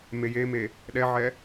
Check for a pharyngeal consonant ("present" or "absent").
present